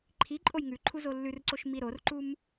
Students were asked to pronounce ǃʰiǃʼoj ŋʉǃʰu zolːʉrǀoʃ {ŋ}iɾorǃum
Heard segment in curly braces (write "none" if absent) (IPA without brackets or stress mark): m